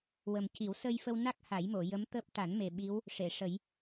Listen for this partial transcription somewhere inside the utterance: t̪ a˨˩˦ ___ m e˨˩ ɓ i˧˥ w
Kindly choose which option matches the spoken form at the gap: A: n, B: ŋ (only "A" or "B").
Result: A